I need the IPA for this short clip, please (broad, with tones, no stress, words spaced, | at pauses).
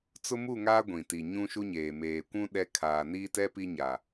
t͡sʊ˦mu˦˨ŋaː˦ ɡʷĩ˨ti˨ ɲũ˦ʃu˦ɲeː˨ meː˨kʷũ˦ ɗɛ˦ kʰaː˨niː˦tɛ˦pi˦ ɲa˨